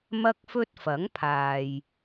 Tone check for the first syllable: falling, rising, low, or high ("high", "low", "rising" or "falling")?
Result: high